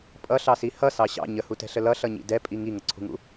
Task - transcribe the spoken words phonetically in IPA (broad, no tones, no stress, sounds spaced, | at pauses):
pʼ ʌ ɬ ɑ s i h ʌ s ɑ ɕ ɑ̰ ɲ ə h u t ɛ̤ ɬ ə l ʌ ɬ ʌ ɲ ḭ d ɛ pʼ i ŋ i ŋ ə ǀʰ ṳ ŋ ṵ